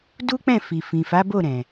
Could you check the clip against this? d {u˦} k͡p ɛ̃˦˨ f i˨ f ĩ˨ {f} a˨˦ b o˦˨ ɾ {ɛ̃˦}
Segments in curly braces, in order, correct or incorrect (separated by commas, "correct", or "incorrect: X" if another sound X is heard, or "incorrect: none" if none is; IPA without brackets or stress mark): correct, correct, incorrect: ɛ̃˨